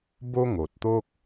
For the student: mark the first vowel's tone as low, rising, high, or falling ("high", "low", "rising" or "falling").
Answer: high